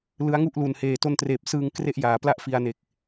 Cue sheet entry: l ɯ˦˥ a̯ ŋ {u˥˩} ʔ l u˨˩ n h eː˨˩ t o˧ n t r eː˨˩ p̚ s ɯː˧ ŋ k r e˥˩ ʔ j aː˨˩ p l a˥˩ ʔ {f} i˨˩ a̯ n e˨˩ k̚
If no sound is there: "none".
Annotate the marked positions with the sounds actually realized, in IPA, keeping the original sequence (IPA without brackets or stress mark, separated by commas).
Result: u˥˩, f